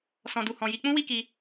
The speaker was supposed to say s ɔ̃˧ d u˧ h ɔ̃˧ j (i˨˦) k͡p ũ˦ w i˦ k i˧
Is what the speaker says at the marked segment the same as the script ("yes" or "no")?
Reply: no